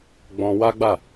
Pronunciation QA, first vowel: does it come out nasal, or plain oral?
nasal